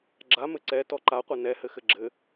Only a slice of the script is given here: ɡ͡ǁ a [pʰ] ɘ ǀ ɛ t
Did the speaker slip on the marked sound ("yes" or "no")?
yes